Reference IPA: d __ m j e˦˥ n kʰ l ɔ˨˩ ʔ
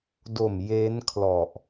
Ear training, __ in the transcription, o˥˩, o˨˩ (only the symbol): o˨˩